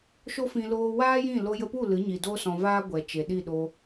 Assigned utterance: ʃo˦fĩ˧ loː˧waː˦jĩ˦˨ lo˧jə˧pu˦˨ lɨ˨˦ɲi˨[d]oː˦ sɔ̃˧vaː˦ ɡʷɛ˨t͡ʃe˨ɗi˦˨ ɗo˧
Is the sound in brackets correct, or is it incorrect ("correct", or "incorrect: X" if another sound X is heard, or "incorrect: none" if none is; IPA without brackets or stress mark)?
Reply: correct